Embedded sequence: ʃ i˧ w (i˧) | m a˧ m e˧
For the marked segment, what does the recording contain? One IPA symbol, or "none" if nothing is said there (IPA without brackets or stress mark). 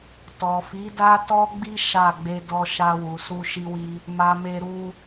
i˧